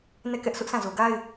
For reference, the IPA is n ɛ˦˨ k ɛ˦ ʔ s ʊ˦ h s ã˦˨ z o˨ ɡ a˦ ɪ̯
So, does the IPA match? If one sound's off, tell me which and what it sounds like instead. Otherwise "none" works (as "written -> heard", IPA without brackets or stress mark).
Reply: h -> ʔ